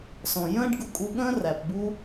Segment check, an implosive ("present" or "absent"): present